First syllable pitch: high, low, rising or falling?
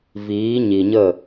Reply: rising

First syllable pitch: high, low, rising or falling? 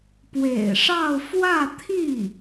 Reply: low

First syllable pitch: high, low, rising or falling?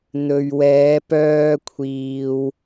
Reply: low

